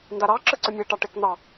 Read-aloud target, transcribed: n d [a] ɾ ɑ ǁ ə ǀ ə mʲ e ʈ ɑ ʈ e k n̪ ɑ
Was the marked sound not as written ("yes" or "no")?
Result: no